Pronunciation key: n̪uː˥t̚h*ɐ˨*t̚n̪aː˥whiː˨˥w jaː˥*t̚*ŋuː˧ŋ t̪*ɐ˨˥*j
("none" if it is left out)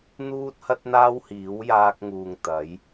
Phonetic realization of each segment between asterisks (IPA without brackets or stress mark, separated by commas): ɐ˥, k̚, ɐ˨˥